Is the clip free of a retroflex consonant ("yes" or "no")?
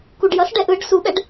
no